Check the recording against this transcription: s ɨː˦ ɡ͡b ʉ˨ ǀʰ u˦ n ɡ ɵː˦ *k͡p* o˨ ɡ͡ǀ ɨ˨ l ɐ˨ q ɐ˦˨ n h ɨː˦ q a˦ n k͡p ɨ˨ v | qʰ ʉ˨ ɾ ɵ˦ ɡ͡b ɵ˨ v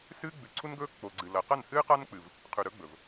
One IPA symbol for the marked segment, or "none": k͡p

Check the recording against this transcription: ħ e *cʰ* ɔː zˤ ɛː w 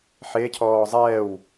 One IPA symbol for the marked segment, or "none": cʰ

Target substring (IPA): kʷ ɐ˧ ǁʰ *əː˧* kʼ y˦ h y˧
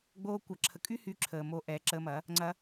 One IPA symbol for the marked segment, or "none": ə˧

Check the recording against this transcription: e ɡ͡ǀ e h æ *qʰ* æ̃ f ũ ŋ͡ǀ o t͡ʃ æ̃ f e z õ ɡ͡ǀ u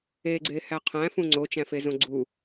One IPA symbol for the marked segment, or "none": qʰ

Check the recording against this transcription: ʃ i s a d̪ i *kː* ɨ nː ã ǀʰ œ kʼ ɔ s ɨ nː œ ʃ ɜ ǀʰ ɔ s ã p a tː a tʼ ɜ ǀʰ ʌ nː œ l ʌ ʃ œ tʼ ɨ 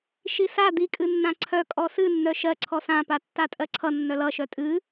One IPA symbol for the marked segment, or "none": kʼ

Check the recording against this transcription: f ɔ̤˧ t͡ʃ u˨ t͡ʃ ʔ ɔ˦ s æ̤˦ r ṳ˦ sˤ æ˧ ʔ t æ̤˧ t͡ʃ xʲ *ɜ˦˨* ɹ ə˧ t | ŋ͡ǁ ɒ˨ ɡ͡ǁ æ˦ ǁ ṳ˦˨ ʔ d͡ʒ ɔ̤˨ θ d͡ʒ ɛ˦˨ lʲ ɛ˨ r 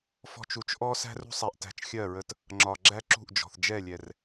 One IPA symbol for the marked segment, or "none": ɜ˦˨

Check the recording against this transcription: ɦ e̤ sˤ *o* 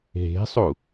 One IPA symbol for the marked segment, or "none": u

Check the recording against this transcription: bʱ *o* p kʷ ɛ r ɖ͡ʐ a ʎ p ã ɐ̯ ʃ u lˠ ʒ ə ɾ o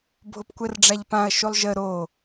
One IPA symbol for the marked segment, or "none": o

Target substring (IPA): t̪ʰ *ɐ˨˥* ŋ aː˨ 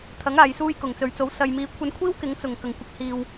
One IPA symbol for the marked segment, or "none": ɐ˨˥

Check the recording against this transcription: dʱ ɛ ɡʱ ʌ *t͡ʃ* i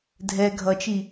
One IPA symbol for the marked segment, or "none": t͡ʃ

